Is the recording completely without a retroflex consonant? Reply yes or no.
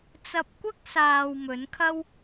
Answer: yes